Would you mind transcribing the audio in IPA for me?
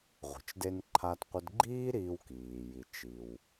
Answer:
ʁʷ ə̤˩ t͡ʃ d e˧ n ǃʰ a˧ t qʷ ə˧ d ɡ͡ǃ iː˥ ɾ iː˧ w k iː˩ j i˩ t͡ʃ i˩ w

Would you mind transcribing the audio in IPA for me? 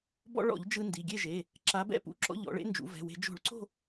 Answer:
b ɔ̰˧ ɭ ɔ̰˧˩˧ ʎ d͡ʒ ɯ˧ n d i˩˧˩ ɡʲ e˥˨ ʒ e˩˧˩ | ǁ a˨˥ b ɛ̰˥˨ p ṵ˨˥ ǁ ɔ̰˧ ʎ ɔ̰˩˧ ɭ ḛ˧ n d͡ʒ ṵ˩˧ v ɛ̤˩˧˩ w e̤˧˩˧ d͡ʒ o̤˧˩˧ ɭ ǀ o̤˥˨

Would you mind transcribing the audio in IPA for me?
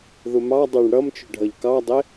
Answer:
ð ʊ m ɑ dˤ ə˞ ɳ ɽ ʌ m t͡ʃ ʊ ɖʱ ʌ ʎ k ɑ dˤ ɪ

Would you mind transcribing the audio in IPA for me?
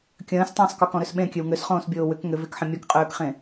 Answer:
kʲ ə̃ː s tˤ ə̃ː sˤ k ʏ k ɔ̃ ɾ ø s ɓ ẽ kʲ ø w ŋ ø s χ õː s bʲ oː w ʏ k ŋ ʏ v e k ħ ə̃ mʲ ɔ k qʼ øː k χ ẽ

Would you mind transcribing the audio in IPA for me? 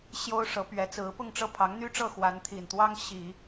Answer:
ɕ j o˥ ʊ̯ ʂ ɤ˧˥ p ɥ ɛ˧˥ t͡s ɹ̩˧˥ p ʊ˥˧ ŋ ʈ͡ʂ ɤ˥˩ pʰ ɑ˧˥ ŋ n̪ y˥ ʈ͡ʂ ɤ˥˩ x w a˧˥ n t̪ʰ i˨˩ n t̪ w ɑ˥ ŋ ɕ i˨˩˦

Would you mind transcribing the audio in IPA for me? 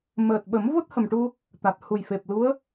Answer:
m əː˨˩ t̚ ɓ ə˨˩˦ m v o˦˥ t̚ h ə˨˩ m ʈ u˧ | t̪ a˨˩ t̚ h u˨˩ j f e˨˩ p̚ l u˧˥ ə̯

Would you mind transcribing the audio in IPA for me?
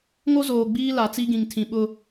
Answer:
ŋ o˦ z oː˨ ɡ͡b iː˦ l a˨ t͡s i˦ ɡ ĩ˨ ŋ tʰ ĩ˨ ɓ ʊ˦

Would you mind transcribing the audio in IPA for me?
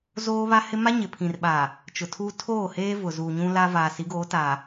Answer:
z oː˦ β a˦ h ɪ˦ m a˦ ɲ ɪ˨ pʰ ĩ˨ r ɓ aː˨ | t͡ʃ ʊ˨ tʰ uː˦ tʰ oː˦˨ h eː˦ v ʊ˨ z uː˨ ɲ ũ˦ l a˦ v aː˨ s i˨˦ ɡ oː˨˦ t aː˨

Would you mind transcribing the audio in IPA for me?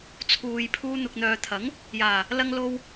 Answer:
t͡sʰ uː˨ j pʰ uː˧ n̪ ʊ˨ k̚ n̪ œː˨ t̪ʰ ɐ˨˥ ŋ | j aː˨˩ | l ɐ˥ ŋ l o˥ w

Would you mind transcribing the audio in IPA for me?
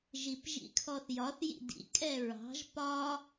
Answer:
ʒ i p ʒ ḭ kʰ ɔ θ j ɒ θ j ḭ d ḭ kʼ ɛ ɹ ɑ̤ ʒ p ɒ

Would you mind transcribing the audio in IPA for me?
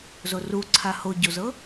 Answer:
z o r u ǀʰ a h o ɟ o z ɤ

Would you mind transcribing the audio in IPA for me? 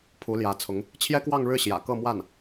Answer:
pʰ u˧˥ l j ä˧˥ t͡sʰ ʊ˧˥ ŋ | t͡ɕʰ j ɛ˥ k w ɑ˥˧ ŋ ɻ ɻ̩˥˩ ɕ j ä̰˨˩ k ɤ˥˧ m w a˥˩ n

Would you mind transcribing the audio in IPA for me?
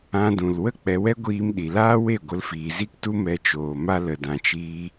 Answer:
ã˧ d ũ˨ l w ə˦ k͡p ɛ˧ w ɛ˦ ɡʷ iː˧ m ɗ i˨ l aː˦ w e˦˨ ɡʷ ə˧ l f iː˨ z i˦ k t u˦ m ɛ˧ t͡ʃ oː˨ m a˦ l ə˨ d ã˨ t͡ʃ iː˧

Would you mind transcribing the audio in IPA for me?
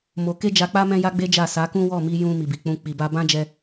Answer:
m o˧ k e˦ d͡ʒ a˧ k͡p a˦ m ɛ̃˦ j a˦ ɡ͡b e˦ d͡ʒ a˦˨ s a˨˦ k ũ˦ w ɔ˦˨ m i˧ j ũ˧ m i˨ b i˨ k͡p ũ˧ k͡p i˨ b a˧ b ã˦ d͡ʒ ɛ˧

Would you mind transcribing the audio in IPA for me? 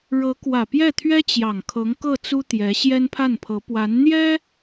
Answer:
ɻ ɤ˧˥ k w ä˨˩ p j ɛ˥˩ t̪ʰ ɥ ɛ˥ t͡ɕ j ɑ˨˩ ŋ kʰ ɤ˧˥ ŋ k ɤ˥˩ t͡s u˥ t̪ j ɛ˧˥ ɕ j ɛ˥ n pʰ a˥˩ n pʰ ɤ˧˥ p w a˧˥ n n̪ j ɛ˥

